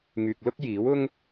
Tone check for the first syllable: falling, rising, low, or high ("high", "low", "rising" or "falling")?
low